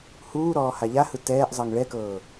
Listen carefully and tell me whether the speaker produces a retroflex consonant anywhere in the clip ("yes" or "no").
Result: yes